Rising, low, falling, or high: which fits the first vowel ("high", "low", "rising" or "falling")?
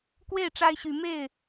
falling